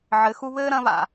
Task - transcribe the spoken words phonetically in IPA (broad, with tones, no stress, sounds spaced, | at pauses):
ʕ ɘ˨˦ x u˦ β ɘː˦ ɾ ɐ̃˦ β a̰˨